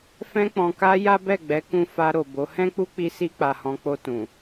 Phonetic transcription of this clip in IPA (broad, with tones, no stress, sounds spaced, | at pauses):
f ɛ̃˧ k͡p ɔ̃˨ k a˧ j a˦ b ɛ˦˨ ɡ͡b ɛ˨˦ k ũ˧ f a˧ ɾ o˨ b o˨˦ h ɛ̃˦ k͡p u˦ k͡p i˧ s i˧ k͡p a˨ h ɔ̃˨ k͡p o˧ t ũ˨